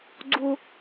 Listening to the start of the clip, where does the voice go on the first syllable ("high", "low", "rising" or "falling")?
high